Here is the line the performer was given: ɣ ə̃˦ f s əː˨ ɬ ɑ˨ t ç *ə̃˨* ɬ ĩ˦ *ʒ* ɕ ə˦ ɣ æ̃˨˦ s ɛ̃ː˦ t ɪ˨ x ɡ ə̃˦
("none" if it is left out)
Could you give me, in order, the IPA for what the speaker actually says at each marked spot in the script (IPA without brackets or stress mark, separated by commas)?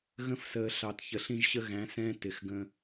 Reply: ə˨, ʒ